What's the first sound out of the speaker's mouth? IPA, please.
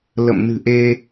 l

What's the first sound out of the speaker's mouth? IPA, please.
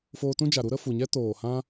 f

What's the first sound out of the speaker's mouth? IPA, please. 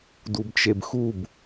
d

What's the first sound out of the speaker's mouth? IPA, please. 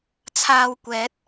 t͡sʰ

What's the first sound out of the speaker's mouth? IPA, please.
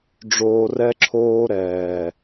ɖ͡ʐ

